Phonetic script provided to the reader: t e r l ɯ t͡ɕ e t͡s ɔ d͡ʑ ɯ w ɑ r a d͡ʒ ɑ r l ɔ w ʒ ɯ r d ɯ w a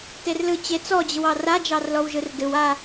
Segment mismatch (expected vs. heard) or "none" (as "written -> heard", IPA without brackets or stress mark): none